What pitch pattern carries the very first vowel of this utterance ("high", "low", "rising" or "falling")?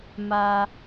low